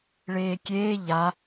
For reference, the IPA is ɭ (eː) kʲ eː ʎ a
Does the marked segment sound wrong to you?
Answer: no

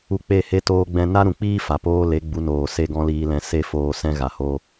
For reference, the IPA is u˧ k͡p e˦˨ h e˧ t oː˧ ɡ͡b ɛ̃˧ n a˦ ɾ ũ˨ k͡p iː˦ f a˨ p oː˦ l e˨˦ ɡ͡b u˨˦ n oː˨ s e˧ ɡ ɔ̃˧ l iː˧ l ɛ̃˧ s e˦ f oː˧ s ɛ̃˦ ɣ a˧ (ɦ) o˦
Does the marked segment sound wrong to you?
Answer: yes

